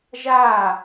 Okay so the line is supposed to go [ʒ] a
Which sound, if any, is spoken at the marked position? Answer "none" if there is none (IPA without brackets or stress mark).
ʒ